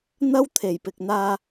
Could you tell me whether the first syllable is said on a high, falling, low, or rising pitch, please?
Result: high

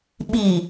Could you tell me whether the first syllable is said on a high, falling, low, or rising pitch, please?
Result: low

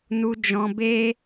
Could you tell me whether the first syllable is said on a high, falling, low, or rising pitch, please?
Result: high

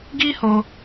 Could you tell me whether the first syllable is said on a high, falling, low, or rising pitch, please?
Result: high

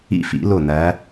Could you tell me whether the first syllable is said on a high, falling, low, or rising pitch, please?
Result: falling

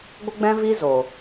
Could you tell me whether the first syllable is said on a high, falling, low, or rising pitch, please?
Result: high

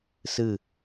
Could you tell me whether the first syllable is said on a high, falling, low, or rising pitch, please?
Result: falling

